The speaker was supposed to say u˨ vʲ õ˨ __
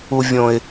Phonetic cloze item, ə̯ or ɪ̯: ɪ̯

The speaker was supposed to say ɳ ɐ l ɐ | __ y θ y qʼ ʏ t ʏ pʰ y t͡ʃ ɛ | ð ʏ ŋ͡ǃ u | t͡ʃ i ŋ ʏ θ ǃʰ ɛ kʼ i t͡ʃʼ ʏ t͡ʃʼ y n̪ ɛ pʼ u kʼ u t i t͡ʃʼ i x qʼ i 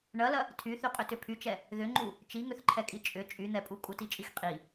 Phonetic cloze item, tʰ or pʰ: tʰ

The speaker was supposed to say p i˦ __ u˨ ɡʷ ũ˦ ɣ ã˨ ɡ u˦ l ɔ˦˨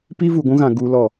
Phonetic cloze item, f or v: v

